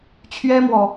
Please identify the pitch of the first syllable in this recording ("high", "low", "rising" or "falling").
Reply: high